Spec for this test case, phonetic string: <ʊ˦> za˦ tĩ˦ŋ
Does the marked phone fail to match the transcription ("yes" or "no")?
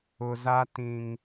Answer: no